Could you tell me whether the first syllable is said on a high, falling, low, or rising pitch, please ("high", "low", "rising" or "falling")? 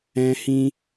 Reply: high